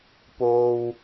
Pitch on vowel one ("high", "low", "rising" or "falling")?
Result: low